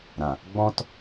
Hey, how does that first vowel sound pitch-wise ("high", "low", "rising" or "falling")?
low